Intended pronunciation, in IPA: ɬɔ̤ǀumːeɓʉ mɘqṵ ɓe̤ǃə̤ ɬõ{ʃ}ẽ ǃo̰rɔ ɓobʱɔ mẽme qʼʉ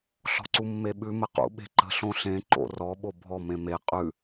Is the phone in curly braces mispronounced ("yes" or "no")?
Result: yes